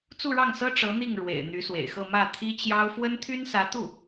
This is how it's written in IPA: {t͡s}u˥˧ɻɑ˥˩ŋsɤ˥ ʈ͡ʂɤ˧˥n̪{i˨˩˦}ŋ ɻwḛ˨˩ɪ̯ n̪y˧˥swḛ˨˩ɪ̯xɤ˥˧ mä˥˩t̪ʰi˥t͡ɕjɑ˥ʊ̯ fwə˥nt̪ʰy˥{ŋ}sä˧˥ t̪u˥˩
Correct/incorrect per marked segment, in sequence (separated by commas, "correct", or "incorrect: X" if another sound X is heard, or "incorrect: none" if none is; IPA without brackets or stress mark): correct, incorrect: i˥˩, incorrect: n